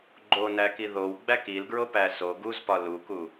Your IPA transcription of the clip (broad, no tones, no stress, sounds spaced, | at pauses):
ɡ͡ǃ o n æ k i ð o w ɡ͡b æ k i l ɡ ɹ o p æ s o ɡ u z p ɒ l u k u